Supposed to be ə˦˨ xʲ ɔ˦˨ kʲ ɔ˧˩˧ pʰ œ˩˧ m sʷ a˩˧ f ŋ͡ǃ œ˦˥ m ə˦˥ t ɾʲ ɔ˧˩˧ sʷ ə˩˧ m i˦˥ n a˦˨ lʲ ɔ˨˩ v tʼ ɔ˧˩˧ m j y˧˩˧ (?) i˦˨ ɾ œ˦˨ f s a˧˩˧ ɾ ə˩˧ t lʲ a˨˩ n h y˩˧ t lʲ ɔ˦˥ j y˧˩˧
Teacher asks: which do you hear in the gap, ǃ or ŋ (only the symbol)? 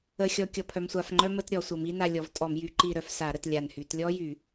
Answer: ǃ